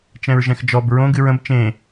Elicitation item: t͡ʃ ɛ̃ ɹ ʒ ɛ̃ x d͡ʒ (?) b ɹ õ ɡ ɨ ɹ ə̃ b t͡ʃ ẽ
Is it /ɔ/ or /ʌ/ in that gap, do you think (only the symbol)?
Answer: ɔ